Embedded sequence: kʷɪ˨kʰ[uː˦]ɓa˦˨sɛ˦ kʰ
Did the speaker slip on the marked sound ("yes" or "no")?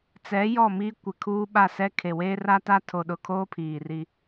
no